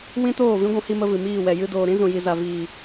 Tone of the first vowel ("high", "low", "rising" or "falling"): high